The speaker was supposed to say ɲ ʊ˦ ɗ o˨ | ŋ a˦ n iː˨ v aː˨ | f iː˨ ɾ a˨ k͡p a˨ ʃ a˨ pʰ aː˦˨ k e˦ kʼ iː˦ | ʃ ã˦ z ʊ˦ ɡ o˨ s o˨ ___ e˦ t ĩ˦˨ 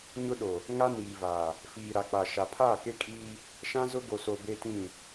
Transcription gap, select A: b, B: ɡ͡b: A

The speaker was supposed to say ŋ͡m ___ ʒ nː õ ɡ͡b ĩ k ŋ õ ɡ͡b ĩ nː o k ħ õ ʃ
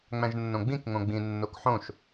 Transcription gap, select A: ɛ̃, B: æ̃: B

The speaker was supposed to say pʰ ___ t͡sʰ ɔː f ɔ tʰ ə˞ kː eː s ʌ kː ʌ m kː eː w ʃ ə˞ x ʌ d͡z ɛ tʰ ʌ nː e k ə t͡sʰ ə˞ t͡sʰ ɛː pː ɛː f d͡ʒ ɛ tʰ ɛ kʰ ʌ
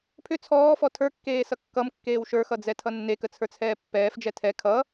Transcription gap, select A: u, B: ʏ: B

